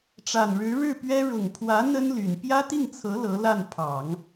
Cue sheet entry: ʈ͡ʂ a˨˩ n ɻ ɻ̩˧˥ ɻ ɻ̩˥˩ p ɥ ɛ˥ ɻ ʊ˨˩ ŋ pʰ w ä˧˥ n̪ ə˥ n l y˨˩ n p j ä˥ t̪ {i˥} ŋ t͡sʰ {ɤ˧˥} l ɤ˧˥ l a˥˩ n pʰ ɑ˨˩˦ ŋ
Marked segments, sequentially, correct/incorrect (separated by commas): incorrect, correct